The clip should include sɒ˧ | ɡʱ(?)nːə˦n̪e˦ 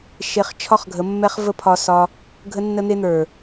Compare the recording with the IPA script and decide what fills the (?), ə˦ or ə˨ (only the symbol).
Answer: ə˦